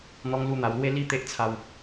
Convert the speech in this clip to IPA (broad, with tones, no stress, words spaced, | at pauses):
n̪ɔ˧ŋlu˧ n̪a˧w lwe˦ li˦ t̪e˦ʔt͡sʰa˧w